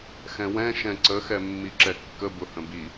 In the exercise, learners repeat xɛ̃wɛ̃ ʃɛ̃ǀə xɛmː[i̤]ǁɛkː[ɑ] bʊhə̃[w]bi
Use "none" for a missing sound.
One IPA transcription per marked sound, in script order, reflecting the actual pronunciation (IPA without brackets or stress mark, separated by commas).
i, ə, none